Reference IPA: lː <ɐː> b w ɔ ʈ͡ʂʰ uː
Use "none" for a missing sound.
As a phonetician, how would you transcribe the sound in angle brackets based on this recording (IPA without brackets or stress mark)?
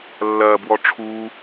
ɐː